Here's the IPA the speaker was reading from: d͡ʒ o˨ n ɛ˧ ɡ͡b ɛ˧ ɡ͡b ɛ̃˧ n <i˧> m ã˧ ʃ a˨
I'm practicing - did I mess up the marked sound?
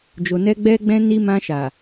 no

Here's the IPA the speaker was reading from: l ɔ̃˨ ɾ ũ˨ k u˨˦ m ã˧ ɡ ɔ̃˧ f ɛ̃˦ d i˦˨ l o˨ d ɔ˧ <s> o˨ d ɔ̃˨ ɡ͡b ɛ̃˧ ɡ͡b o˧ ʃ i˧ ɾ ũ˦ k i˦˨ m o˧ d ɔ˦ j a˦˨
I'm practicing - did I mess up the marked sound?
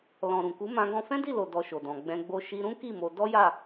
yes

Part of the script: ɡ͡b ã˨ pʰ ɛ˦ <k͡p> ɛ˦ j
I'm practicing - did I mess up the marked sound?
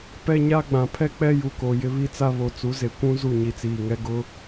no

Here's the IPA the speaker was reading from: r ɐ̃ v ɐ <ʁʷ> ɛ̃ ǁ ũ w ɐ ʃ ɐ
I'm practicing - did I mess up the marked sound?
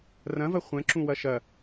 yes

